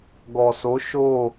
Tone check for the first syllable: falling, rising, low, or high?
low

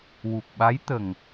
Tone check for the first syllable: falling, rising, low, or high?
low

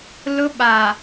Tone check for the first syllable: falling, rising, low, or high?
high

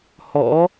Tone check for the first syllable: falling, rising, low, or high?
rising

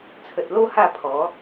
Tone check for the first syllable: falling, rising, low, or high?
low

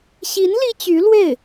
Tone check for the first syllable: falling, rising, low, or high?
rising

